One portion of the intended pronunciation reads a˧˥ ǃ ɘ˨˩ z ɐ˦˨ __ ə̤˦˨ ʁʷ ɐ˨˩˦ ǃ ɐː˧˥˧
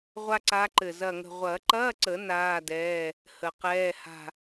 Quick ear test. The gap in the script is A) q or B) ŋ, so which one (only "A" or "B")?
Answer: B